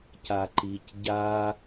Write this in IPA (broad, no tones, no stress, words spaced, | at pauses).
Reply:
caǃic ɟa